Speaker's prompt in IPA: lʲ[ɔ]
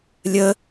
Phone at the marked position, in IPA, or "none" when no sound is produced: ə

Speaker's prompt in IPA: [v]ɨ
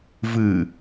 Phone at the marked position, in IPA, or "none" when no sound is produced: v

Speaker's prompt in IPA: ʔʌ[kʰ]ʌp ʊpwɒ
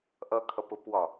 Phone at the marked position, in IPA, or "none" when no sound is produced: kʰ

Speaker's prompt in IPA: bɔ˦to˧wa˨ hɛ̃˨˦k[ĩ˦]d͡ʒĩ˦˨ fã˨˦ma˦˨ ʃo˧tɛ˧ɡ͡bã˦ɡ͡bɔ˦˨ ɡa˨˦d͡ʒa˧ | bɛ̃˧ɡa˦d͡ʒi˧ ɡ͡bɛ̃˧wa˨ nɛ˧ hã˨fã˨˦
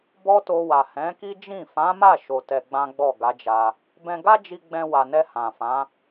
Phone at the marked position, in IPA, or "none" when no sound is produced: i˦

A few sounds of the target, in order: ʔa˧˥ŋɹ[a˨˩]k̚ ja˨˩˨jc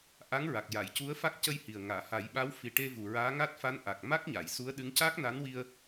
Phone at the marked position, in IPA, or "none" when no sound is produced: a˨˩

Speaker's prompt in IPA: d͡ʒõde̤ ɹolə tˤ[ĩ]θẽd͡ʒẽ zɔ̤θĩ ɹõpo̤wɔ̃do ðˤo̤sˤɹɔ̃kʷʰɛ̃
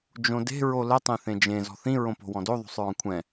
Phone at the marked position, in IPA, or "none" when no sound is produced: ẽ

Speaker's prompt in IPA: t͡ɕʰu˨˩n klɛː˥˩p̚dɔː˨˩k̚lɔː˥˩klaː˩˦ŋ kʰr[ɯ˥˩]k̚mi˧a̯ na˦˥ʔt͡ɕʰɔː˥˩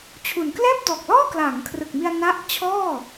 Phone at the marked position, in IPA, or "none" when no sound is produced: ɯ˨˩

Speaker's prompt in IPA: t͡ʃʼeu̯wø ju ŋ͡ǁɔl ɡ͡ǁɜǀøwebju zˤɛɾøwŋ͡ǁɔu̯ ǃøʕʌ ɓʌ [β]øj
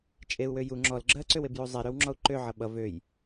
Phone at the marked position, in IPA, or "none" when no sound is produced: v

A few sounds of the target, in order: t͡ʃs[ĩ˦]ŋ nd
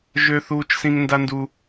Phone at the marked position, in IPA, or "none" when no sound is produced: ĩ˦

